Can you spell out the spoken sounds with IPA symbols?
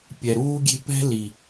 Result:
pʲɛ˨ɾuː˦ɡʲe̤˦ pɛ̤˦ li˨

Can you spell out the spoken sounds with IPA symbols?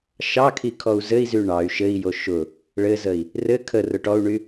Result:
ʃɑkʰi kʰɔu̯zɘi̯zy ɳɑy̯ ʃɘi̯jo ʃʊ | ɭɘzəi̯ | rɘ kʰərʊ ʈɔu̯ɳy

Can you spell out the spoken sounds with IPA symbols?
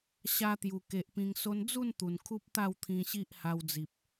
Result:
ɕa˧ t̪ju˨˩ke˨ʔ pĩ˧ŋso˦n d͡zu˥˧n t̪u˨˩n kʰu˦p̚t̪a˥˧wt̪ʰĩ˧ ɕi˦ʔha˧wd͡zi˨p̚

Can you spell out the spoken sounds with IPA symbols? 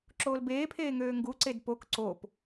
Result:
ǁoːlbeːpʰeː ŋøːŋɡuǀed pok ǀop

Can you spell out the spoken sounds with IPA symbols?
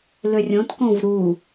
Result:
lørʲõt kõvɾu

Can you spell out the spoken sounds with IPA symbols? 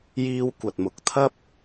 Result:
jiː˧wkʷɐ˨t̚mʊ˨k̚t̪ʰɐ˥p̚

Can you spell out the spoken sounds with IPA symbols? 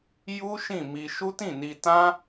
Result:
ju˦ ʃĩ˦˨mi˧ ʃu˦tĩ˦˨ni˧ tã˦

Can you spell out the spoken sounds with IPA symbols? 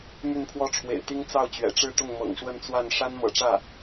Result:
my˥˧npʰwɔ˥˩ʈ͡ʂʰwḛ˨˩ɪ̯t̪i˥ŋ t͡sɑ˥˩ʊ̯t͡ɕɥɛ̰˨˩ʈ͡ʂɻ̩˥˧t̪ʊ˥˩ŋ mɤ̰˨˩ŋʂwə˥˧nt͡swa˥˩n ʂa˥nmɤ̰˨˩ʈ͡ʂä˥˩

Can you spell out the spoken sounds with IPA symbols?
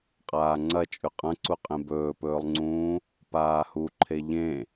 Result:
qʼaːŋ͡ǀɐ t͡ʃʼʉqʼɐ̃ǀuqʼẽ bɵːpɵːlˠŋ͡ǀũː | paːhuǃʰe ʎẽ

